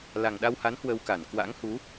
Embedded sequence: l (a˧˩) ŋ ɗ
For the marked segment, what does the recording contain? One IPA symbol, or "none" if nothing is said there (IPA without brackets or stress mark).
a˨˩